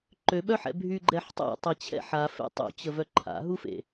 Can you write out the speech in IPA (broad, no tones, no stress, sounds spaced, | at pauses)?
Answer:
ǃ ø ɓ œ ħ ɛ̰ bʱ y ɡ͡ǃ ɛ ħ tˤ a̰ tˤ i t͡ɕʰ ɛ̰ ħ a f ḛ tˤ ṵ t͡ɕ ə v œ ǃʰ a̰ ɦ u f ḛ